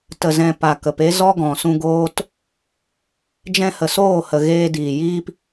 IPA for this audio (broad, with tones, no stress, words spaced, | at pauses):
tə˨zɛ̃˨ pa˨kə˨pe˦ zɔ˦ɡɔ̃˨sũ˧ɡoː˦t | d͡ʒɛ̃˧hə˨soː˦˨hə˨ ɣeː˧diː˨jiː˦p